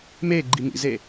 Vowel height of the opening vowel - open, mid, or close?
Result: mid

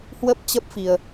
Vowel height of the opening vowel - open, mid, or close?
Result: mid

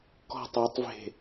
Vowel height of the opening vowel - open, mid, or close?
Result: mid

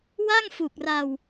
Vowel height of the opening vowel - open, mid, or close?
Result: open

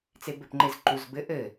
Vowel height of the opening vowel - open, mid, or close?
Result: mid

